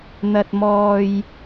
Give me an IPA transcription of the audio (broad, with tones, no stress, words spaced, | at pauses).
n̪ɐ˧t̚mɔː˧j